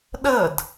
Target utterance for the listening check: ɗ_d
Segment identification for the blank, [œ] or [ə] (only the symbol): ə